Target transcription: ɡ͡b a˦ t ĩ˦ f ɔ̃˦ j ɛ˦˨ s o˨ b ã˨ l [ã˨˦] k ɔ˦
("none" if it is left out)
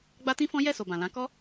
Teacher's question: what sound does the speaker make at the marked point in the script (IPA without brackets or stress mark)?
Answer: ã˨˦